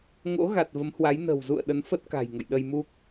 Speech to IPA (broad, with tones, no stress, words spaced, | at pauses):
ŋo̰˧˥ɣa˨˩t̚ və˨˦mhwa˨˦j nə̤˨˩wzṵ˧˨ə̯ ɗə˨˦nfə˦˥t̚ka̤˨˩j ŋə̰˧˨jɗə˧jmu˦˥k̚